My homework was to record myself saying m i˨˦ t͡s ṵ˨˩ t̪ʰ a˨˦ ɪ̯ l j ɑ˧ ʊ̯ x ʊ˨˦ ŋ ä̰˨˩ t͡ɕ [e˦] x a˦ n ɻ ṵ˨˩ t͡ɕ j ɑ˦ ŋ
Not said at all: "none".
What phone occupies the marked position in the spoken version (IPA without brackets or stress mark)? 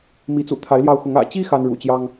i˦